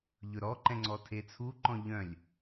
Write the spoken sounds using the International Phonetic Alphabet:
ʎ ɵ ɾ ɔ ǃ ɛ̃ ŋ͡ǀ ɔ tʰ e t͡sʰ u ǃ ɔ̃ ʎ œ̃ lʲ

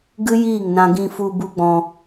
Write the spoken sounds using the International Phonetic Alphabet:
ɡ ɨ˦ j iː˦˨ ŋ n ã˧ ɡ ĩ˧ f u˧ b u˦ ɡ͡b ɔ̃˧

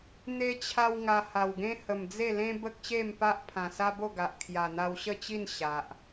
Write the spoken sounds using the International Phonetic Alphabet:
n̪ e˧ t͡ɕʰ a˧ w ŋ a˧ h a˨˩ w ɡ ẽ˦ h ə˨˩ m d͡z e˥˧ l ẽ˦ b ə˦ k̚ ɕ e˥˧ m p a˦ ʔ pʰ ã˨˩ s a˦ b o˥˧ ɡ a˨ ʔ kʰ j a˨˩ n̪ a˧ w ɕ ə˥˧ t͡ɕ i˥˧ n ɕ a˨ ʔ

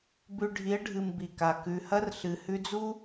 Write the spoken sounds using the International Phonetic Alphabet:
b ʉ˧ ɖʱ i˨˦ ə̯ ɖʱ ɨ˨ m b i˨ k a˨ k ʉ˨ h ɐ˦ r ɬ ɨ˨ h ʉ˧ d͡z u˦

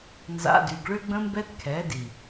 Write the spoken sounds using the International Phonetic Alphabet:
n z a̰˦ d y˧ ɡ ɭ ø˦ ɡ͡b ə̃˦ m b ɛ˦ t kʰ ɛ˨˦ d i˨

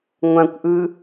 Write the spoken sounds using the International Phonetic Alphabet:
ŋʷ ã kʷ ʔ ɯ

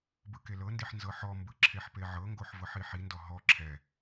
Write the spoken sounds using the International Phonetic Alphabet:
b ɯ k e l ɤ n d i ħ n z ɤ ħ ɔ m b ɯ ǁʰ e ħ p e ʕ ɤ ŋ ɡ o ħ v ɤ ħ i ħ i n d ɔ ɦ ɔ ǁʰ ɛ

